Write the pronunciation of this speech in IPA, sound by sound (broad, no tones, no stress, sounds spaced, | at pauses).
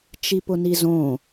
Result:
t͡ʃ i p ʊ n i z õ